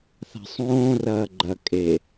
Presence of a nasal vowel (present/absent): present